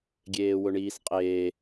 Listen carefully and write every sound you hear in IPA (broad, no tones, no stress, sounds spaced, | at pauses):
ɡʲ eː w ʊ ɳ iː s qʼ eː